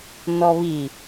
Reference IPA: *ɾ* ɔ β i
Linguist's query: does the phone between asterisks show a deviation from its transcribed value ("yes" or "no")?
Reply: yes